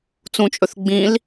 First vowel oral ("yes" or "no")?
no